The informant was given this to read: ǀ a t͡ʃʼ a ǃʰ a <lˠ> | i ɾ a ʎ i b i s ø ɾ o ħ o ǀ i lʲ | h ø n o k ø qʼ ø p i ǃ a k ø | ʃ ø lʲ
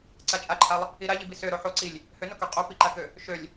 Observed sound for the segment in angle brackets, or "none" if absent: lˠ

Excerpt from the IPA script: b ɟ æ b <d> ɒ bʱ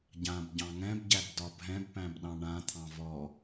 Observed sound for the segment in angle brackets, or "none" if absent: d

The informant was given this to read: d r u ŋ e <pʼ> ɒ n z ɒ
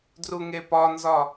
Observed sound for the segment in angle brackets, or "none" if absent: p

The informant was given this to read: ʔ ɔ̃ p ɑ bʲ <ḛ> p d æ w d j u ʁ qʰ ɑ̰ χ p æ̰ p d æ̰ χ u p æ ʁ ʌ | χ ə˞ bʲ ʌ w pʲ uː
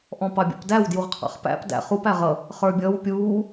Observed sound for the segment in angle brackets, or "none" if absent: ɛ̰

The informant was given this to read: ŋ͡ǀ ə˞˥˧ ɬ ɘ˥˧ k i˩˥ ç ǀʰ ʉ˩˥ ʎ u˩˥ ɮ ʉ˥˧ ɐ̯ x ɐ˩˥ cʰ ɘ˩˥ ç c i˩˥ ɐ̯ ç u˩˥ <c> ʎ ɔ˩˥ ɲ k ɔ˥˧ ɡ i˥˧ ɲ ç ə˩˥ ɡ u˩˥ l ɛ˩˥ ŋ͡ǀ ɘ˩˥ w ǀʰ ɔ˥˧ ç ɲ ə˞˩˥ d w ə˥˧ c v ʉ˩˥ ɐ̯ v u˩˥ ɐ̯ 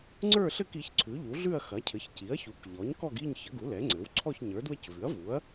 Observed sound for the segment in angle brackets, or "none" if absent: k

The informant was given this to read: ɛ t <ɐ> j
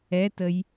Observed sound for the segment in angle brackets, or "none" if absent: ə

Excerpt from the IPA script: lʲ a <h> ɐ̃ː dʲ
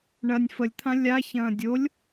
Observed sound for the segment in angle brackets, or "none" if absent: ç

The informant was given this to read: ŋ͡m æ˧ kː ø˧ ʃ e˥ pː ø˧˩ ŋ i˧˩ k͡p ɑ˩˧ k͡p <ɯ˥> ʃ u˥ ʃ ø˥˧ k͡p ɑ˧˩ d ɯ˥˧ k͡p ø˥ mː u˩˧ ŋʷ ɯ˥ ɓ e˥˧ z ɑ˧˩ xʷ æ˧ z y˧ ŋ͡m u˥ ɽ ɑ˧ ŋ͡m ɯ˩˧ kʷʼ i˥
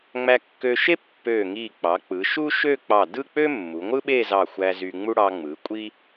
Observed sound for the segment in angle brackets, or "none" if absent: ɯ˩˧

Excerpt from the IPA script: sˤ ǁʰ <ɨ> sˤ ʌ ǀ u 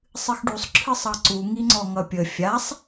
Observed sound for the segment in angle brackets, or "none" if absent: ɨ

